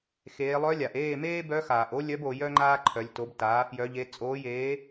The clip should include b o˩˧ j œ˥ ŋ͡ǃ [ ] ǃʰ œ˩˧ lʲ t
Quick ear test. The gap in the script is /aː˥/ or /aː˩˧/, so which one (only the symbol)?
aː˥